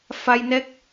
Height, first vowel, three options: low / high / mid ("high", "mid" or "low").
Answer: low